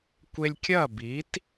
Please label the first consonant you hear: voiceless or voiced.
voiceless